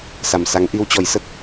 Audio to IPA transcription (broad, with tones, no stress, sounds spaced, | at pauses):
s a˨˩ m s a˨˦ ŋ ʔ i˧ w t͡ɕ ɔ˨˩ j s ə˦˥ t̚